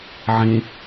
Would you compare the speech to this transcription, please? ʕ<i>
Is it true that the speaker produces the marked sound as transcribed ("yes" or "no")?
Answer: no